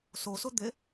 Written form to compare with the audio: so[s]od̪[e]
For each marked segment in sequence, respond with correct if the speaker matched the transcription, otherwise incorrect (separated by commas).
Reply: correct, correct